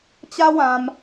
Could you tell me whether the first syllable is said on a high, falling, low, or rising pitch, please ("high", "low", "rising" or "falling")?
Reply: high